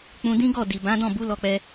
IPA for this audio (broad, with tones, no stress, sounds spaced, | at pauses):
k͡p ũ˧ d ĩ˦ ɡ ɔ˦˨ d i˨ b ã˨˦ d ɔ̃˦˨ b u˨˦ l ɔ˧ k͡p ɛ˧